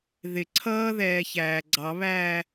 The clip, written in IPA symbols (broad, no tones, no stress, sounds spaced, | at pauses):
ð ɪ ǀʰ ʌː ð ɛː ç æː ɡ͡ǀ ɑ β æː